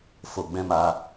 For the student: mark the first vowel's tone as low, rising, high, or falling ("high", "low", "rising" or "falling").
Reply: low